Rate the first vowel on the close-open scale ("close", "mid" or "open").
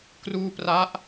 close